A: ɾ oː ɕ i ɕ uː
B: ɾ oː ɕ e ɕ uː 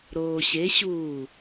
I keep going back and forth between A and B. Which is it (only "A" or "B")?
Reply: B